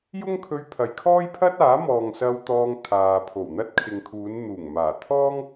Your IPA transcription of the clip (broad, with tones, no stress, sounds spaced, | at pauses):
j ʊ˥ ŋ kʰ ɵ˧ ɥ pʰ ɐ˨ j kʰ ɔː˥ j pʰ ɐ˥ t̚ aː˨˥ m ɔː˨ ŋ s ɐ˧ w t̪ ɔː˧ ŋ t̪ʰ aː˨ pʰ o˨˩ w n̪ ɐ˥ t̚ kʰ ɪ˨ ŋ kʰ uː˨˧ n n̪ uː˨˩ ŋ m aː˨˩ t̪ʰ ɔː˥ ŋ